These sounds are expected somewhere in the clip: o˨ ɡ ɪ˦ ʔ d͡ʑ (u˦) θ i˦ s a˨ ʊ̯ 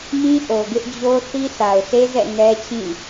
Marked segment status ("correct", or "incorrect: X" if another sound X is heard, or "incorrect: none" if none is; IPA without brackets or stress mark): incorrect: o˦